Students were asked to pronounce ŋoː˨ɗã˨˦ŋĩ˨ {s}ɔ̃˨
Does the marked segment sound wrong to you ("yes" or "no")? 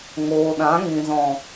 yes